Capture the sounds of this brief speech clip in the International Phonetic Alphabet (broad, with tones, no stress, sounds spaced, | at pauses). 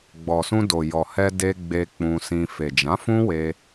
ɡ͡b ɔ˨ s ũ˧ d o˨ j ɔ˨ h ɛ˧ d e˧ ɡ͡b e˧ k͡p ũ˧ s ĩ˧ f e˨ d͡ʒ ã˨˦ f ũ˦ w e˧